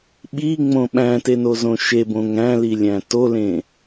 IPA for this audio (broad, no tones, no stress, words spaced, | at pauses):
ɓiŋ͡mõ ɓæ̃tenozõ ʃebõŋ æ̃lilʲæ̃ tolẽ